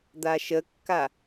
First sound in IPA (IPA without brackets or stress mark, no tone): d̪